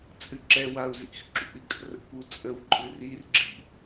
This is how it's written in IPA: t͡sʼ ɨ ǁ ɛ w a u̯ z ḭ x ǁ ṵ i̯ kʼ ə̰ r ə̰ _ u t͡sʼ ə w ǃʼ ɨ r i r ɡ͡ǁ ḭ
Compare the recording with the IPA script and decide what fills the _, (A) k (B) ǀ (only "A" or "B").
A